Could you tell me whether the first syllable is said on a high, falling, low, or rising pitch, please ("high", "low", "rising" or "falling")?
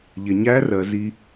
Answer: low